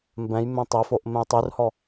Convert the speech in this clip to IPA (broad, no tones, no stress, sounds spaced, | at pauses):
m b ɛ̃ j m ẽ tˤ ø f o ʔ m ẽ j tˤ y r h ɔ